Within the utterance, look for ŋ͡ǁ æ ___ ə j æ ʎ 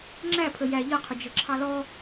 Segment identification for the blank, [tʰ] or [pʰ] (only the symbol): pʰ